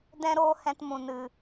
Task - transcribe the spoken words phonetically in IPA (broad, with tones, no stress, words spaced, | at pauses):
dɛ̃˦ɾoː˦ hɛ̃˧tmũ˨nɨ˨